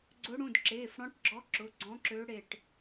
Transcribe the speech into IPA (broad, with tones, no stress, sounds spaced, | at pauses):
ɡ͡ǀ ʊ˧˥ ɽ ũ˩˧˩ d ǁ eː˩˧˩ f ɽ ɔ̃˧˥ ʈ ɡ͡ǁ ɔ˧˥ ǁ ʊ˩˧˩ ɡ͡ǀ ɔ̃˧˥ ǁ ø˧˥ ɽ e˧˩ ʈ